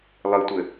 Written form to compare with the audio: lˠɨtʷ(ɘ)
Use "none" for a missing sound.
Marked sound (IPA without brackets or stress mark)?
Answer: ɘ